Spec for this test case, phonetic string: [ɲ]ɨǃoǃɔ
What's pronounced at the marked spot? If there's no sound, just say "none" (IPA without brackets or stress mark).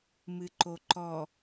m